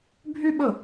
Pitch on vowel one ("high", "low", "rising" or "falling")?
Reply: high